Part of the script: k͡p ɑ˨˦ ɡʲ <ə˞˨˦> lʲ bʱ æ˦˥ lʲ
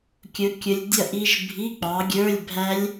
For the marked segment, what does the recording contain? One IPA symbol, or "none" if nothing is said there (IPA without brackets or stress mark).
ə˞˧˥˧